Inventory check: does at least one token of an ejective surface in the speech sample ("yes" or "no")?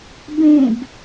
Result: no